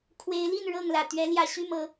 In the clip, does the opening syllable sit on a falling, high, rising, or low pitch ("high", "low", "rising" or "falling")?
rising